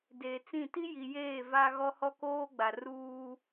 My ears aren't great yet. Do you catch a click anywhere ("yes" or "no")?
no